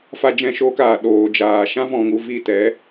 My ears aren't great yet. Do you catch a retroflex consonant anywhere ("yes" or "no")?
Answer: no